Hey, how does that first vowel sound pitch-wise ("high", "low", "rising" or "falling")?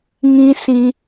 high